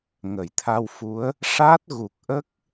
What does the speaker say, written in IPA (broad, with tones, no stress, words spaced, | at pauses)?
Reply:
ŋə˨˩˨jt̪ʰa˧wfu˧˥ə̯ | ʂa˦˥t̚ ɣu˨˩k̚ʔə˦˥k̚